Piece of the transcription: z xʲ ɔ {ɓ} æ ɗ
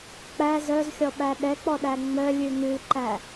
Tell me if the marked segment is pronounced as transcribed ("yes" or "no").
yes